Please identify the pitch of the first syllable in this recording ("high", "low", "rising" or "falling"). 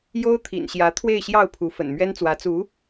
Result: high